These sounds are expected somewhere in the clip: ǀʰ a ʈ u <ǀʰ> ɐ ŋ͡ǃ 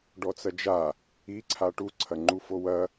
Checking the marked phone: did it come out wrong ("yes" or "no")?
no